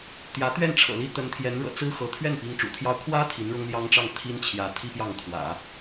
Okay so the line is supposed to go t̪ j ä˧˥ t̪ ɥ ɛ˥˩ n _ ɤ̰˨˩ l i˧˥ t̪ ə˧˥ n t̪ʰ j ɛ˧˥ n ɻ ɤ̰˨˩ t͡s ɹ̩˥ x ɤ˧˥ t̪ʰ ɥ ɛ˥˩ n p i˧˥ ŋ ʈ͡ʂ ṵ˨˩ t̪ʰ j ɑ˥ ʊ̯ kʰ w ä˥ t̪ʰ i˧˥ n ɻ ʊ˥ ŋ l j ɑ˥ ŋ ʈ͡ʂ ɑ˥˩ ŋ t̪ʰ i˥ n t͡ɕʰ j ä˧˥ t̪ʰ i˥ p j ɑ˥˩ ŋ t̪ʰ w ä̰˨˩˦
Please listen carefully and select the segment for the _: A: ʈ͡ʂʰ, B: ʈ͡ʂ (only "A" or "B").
A